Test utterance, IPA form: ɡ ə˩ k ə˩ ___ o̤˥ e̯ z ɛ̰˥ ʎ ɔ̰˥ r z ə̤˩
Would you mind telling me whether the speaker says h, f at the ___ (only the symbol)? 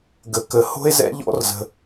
h